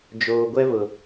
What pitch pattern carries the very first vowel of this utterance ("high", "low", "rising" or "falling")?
low